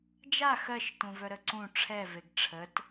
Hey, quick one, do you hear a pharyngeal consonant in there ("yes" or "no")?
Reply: no